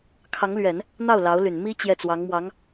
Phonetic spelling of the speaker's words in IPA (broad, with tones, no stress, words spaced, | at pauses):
kʰɑ˧˥ŋlɥɛ˨˩˦n | n̪ɑ˥˩ʊ̯ lɑ˧˥ʊ̯ly˨˩n mi˥ t͡ɕjɛ˥˩t͡swɑ˧˥ŋmwɑ˧˥ŋ